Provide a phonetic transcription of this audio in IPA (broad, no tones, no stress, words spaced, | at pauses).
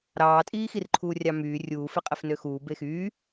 ɾɑːtʼiːxirǃʰuː rʲɑmyː rʲuː feqʼefnøxuː bexyː